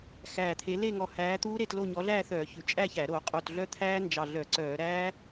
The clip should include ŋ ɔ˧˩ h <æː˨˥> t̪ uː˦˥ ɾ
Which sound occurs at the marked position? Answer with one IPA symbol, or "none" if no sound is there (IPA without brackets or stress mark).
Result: æː˨˥